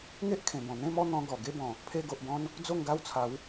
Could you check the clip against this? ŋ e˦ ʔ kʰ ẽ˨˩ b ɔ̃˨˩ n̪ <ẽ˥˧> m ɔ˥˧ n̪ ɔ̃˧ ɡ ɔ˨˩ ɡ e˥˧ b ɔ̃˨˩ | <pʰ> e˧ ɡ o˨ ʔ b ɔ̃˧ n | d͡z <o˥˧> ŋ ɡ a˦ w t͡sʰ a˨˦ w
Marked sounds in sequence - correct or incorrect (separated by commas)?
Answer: correct, correct, correct